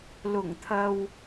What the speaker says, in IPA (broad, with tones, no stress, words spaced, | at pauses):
lʊ˨˩ŋ t̪ʰɐ˨w